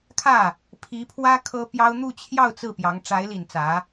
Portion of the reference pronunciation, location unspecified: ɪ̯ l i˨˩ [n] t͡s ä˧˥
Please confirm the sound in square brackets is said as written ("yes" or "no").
yes